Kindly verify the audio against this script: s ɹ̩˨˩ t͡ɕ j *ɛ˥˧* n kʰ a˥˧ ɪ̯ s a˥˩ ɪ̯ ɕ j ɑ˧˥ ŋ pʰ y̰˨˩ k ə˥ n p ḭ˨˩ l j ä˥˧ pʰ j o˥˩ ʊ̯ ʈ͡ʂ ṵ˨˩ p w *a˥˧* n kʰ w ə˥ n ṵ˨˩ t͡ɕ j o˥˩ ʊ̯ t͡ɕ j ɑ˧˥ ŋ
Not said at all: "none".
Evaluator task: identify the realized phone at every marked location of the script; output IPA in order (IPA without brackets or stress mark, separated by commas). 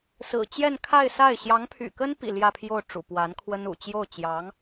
ɛ˥˧, a˧˥